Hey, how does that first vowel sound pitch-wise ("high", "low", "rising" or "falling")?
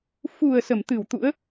low